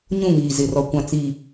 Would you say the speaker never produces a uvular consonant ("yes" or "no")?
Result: yes